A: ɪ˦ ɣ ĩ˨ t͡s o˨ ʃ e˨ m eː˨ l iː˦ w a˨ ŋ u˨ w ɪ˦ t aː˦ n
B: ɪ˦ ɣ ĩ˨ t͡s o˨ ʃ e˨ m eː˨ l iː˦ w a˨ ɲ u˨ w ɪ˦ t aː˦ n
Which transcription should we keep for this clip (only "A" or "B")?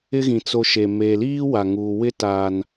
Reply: A